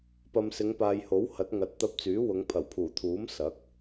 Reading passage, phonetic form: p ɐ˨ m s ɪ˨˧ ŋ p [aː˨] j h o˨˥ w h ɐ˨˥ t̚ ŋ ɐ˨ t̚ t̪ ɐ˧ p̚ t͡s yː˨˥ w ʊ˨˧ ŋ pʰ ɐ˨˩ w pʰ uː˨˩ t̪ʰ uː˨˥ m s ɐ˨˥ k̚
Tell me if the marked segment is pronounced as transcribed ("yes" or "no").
yes